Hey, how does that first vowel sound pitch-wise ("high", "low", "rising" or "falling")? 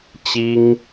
high